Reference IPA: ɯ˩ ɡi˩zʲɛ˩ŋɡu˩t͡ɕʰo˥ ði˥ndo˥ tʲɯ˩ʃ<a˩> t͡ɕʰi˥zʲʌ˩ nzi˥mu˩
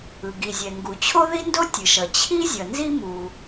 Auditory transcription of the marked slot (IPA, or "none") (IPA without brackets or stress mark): ʌ˩